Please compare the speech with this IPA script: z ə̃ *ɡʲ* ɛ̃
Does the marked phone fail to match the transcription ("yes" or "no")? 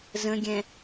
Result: no